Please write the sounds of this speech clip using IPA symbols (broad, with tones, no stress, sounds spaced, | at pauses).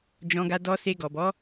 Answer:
d͡ʒ ɔ̃˧ ɡ a˧ d ɔ˧ s e˧ ɡ ɔ˨ b ɔ˨˦